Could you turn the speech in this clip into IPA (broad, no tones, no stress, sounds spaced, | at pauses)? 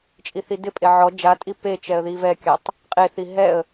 t͡ʃʼ i θ i d ɪ pʼ e ʕ ɔ d͡ʒ a tʼ i p e t͡ʃ ɛ ə̯ ð i v ɛ kʲ a tˤ | qʼ e θ i ɦ ɛ ə̯